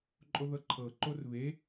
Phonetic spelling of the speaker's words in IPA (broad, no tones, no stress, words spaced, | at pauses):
ǃʼoðɤǃʰɤ ǃorβe